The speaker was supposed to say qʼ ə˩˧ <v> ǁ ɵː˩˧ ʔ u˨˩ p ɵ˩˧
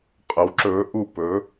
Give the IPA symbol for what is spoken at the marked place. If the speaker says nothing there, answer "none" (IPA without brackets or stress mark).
w